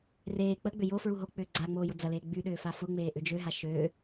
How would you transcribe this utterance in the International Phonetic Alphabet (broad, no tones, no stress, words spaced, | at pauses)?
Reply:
reː k͡pəɡ͡bʏ jo fɹuɦok͡pʏː ɡ͡ǀa ŋ͡moːjʊd͡zɐleː ɡ͡byɗʏː fafʊŋ͡meː ʔʏd͡ʒøɦa ʃø